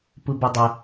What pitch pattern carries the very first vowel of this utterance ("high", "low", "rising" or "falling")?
low